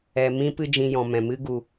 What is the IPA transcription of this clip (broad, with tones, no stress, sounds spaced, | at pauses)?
ɛ˨ m ĩ˦ p ɨ˦ d͡ʒ ĩ˧ j ɔ̃˨ m ɛ̃˨ m ɨ˦ ɡ u˧